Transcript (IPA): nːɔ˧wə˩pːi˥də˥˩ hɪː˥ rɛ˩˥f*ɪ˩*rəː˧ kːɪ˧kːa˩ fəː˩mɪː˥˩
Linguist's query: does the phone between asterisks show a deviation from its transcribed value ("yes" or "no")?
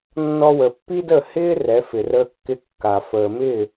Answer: no